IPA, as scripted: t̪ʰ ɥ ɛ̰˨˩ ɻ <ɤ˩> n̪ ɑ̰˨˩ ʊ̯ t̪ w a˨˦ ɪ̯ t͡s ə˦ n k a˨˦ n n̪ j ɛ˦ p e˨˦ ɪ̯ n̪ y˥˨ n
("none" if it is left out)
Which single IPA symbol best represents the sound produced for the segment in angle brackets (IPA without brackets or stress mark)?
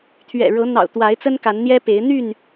ɤ˨˦